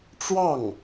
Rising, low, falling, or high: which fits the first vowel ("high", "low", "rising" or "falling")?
falling